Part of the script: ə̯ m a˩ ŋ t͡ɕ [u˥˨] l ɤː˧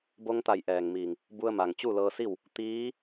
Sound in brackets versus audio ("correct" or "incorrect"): correct